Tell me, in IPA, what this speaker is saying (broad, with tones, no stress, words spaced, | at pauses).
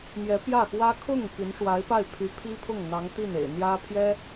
mjɛ˧˥pjä˥˩xwä˥ kʰʊ˥˩ŋ pi˧˥nʂwa˧˥ɪ̯pa˥˩ɪ̯ pʰy˧˥pʰi˥pʰʊ˥˩ŋn̪ɑ˧˥ŋ t̪i˥˩nḛ˨˩ɪ̯n̪jä˥ pʰjɛ˥